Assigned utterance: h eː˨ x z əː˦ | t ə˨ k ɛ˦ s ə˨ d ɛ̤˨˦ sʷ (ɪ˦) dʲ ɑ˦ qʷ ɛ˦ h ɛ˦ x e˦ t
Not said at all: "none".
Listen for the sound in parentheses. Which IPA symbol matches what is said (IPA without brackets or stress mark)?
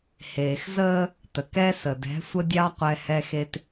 ə˦